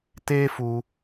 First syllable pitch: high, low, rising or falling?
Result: high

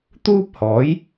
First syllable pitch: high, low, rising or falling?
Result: high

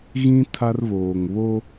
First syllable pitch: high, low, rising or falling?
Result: high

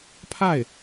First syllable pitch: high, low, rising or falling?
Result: falling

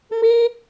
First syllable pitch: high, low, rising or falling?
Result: high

